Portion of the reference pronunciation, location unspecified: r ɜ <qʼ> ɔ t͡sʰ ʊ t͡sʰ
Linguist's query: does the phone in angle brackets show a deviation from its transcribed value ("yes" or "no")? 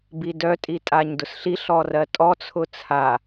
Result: yes